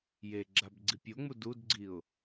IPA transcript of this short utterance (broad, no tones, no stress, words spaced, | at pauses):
jeɡ͡ǁab ɡ͡ǀipʲoŋ͡mu dudɡ͡ǀiʊ̯